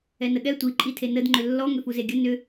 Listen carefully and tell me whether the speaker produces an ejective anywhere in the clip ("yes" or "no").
yes